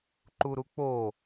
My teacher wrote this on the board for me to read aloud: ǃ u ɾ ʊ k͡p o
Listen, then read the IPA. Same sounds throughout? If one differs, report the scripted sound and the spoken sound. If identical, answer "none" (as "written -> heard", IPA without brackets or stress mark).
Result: ʊ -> u